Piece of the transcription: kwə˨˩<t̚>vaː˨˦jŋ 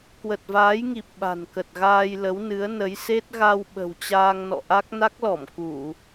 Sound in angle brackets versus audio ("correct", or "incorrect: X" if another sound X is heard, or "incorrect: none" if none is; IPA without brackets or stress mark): correct